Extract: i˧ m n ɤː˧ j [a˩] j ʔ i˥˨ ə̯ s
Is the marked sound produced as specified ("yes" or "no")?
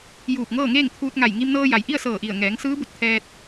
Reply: yes